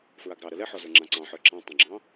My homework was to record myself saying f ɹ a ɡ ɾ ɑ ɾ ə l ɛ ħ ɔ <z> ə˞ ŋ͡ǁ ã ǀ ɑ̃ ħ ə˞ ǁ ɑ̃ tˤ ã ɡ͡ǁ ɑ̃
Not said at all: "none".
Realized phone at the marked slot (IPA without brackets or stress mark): z